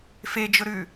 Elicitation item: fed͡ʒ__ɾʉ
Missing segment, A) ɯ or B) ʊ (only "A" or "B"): B